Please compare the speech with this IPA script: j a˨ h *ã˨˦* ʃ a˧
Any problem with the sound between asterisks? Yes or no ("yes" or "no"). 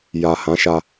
no